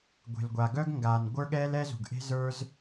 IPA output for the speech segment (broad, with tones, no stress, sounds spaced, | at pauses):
ɡʷ e̤˩ l ɡʷ a˩ ɡ œ˥ ɡ ŋ ɡ aː˩ n ɡʷ ə˞˥ ɠ ɛː˥ l ɛ˥ z ṳ˩ ɡ ʔ e̤˥ z ə˞˥ z